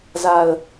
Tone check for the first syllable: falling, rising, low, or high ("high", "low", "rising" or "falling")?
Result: low